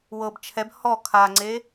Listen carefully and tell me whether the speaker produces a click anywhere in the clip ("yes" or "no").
yes